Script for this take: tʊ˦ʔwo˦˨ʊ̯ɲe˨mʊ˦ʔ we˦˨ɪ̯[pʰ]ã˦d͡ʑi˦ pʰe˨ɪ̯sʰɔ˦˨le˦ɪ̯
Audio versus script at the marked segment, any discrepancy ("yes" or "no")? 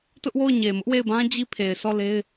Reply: yes